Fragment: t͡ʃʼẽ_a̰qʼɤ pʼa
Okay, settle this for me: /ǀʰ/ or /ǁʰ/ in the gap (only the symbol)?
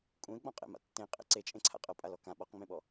ǀʰ